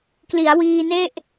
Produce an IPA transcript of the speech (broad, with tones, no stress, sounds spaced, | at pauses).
k l i˩˦ a̯ w iː˧ n e˥˩ ʔ